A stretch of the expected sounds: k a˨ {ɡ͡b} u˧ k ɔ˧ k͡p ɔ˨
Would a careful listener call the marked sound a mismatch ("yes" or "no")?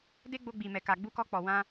no